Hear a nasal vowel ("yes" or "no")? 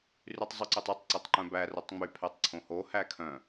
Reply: yes